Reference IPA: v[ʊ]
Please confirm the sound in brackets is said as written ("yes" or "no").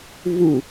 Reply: no